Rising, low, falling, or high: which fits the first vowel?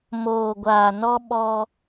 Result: low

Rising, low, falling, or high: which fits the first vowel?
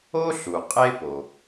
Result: high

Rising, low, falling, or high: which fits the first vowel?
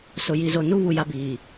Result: low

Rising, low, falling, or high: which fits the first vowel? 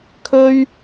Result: high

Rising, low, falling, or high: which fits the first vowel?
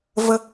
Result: high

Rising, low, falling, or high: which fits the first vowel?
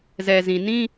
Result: low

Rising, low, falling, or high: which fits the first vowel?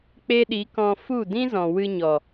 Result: high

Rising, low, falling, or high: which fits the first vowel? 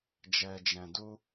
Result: low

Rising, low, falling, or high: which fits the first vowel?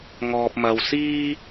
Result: low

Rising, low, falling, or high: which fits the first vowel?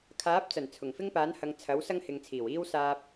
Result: rising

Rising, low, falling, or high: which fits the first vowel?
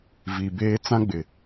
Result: low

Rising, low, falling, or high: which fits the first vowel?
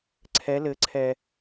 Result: rising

